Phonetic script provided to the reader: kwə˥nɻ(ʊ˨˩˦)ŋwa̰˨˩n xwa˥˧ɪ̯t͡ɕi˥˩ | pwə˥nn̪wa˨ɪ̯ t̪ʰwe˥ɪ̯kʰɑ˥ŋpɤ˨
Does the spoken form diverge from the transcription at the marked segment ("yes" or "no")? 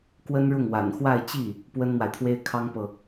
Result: yes